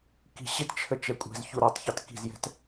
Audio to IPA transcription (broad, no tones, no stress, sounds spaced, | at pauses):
k i̤ ɕ ɪ t t͡ʃʰ ə t͡ʃ ɛ kʷʼ ɛ̤ z ç u ɾ ɔ tˤ ç ɑ t k i̤ z j ɛ̤ t